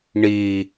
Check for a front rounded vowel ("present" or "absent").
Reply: absent